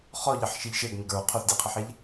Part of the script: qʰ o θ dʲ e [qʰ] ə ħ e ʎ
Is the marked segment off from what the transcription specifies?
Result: no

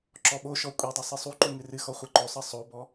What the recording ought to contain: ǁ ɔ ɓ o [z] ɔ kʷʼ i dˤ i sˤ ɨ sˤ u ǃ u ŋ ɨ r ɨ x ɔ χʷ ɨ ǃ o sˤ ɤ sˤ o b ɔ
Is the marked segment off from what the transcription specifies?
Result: yes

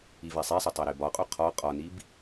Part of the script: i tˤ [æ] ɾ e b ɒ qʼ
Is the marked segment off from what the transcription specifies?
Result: no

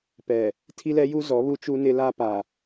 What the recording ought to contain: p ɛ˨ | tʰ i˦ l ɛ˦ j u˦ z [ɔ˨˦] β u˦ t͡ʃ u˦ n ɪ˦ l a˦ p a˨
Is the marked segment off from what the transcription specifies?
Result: no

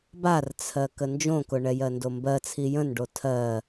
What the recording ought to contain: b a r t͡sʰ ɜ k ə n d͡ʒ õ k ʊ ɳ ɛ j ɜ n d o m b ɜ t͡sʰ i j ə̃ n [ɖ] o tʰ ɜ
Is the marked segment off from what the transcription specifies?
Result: no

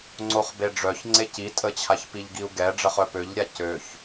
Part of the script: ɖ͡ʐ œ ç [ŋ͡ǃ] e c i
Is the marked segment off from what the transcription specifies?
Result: yes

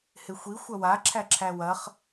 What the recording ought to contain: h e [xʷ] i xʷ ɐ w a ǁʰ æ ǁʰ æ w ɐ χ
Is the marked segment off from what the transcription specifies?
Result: no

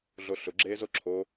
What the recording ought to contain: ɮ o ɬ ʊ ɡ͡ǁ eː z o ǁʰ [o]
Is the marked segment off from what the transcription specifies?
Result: no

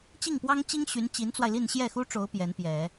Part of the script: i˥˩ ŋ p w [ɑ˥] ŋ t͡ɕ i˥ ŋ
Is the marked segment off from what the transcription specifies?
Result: no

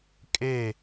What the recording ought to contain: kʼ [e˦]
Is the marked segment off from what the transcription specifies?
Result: yes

